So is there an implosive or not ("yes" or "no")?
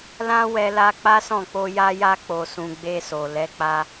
no